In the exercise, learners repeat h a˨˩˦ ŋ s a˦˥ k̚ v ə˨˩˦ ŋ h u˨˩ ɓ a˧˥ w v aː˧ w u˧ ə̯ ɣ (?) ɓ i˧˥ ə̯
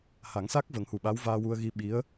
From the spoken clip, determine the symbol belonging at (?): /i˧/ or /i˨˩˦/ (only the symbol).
i˧